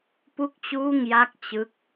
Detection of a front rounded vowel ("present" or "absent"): absent